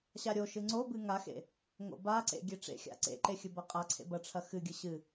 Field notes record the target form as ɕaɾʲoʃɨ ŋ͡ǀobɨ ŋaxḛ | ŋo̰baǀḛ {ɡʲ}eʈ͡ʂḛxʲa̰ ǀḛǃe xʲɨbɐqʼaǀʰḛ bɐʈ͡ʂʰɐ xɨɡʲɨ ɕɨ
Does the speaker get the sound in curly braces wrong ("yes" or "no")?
no